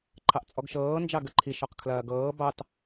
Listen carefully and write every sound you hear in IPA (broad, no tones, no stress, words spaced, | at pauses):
ǃʰɑʔt͡sʼɔɡʃɤː nd͡ʒɑɡəǃʰi ʃɔqkʰlɐːɡɤː bɑt